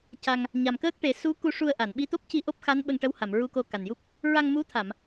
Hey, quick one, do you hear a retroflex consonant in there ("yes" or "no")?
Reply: yes